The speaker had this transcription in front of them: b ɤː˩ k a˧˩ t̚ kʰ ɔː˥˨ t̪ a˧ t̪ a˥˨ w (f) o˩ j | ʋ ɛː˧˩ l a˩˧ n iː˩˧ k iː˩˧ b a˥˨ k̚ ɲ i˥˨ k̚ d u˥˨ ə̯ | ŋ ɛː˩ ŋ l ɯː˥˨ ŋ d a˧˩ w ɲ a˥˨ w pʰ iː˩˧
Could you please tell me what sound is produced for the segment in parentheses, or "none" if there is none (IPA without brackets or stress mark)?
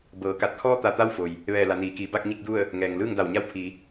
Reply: f